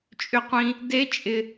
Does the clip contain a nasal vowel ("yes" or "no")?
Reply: yes